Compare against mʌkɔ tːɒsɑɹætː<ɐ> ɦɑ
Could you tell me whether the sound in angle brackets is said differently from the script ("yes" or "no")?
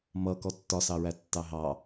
yes